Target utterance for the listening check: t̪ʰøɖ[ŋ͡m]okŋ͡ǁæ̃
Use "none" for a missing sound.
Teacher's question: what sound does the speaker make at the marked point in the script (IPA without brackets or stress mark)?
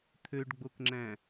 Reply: ɡ͡b